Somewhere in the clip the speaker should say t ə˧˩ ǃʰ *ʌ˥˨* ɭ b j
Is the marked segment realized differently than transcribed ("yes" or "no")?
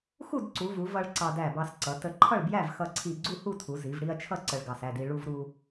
no